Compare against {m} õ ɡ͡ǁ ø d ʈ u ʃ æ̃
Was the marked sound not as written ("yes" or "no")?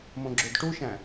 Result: no